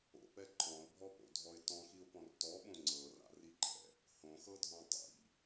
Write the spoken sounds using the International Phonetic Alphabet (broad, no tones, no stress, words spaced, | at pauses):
o̰pɛ ǃʰɔ̃ʊ̯bʱɔpo̰dʱɔɪ̯ tɔ̃xiʊ̯pɔ̃r tɔɓõ ŋ͡ǀɤra̰riǃʰɛ̰ | hõxɤdʱɔ̃ tˤḭ